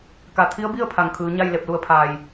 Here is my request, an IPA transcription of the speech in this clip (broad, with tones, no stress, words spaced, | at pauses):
ka˧˩ t̪ʰi˧˥ə̯bi˥˨ə̯ pʰa˩ŋkʰɯː˩˧ ɲa˥˨jle˧˩p̚ lu˧ə̯pʰaː˧˩j